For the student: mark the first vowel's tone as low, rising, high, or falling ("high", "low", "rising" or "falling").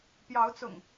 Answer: rising